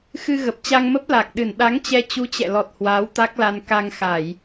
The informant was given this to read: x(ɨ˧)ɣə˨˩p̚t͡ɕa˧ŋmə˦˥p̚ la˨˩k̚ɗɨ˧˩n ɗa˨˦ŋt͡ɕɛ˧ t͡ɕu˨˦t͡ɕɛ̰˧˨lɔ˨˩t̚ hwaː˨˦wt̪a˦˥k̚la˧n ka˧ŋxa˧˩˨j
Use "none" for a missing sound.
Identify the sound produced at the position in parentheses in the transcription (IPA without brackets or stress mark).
ɨ˧